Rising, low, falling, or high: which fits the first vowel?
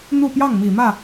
falling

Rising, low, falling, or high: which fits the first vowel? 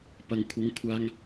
low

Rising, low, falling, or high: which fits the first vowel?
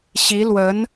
rising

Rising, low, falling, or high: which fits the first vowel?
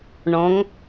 rising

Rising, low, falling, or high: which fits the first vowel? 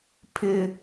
high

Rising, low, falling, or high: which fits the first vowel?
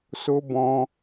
high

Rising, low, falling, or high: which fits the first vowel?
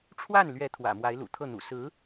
falling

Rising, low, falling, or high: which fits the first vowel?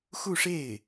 falling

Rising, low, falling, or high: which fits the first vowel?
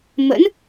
rising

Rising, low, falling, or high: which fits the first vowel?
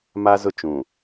high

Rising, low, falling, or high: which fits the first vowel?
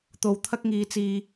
low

